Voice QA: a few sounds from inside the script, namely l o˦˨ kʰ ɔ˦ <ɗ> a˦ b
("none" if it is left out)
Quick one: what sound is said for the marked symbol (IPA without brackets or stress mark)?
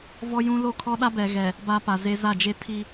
ɗ